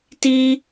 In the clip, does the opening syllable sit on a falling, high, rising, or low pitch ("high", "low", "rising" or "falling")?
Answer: high